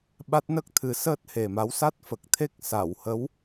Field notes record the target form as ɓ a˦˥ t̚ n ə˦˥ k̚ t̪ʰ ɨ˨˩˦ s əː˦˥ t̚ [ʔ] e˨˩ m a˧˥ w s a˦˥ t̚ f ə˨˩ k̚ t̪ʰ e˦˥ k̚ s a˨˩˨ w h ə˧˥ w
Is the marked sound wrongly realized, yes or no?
yes